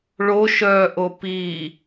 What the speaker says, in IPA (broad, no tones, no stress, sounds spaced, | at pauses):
ɭ o ʃ œː ʔ o p i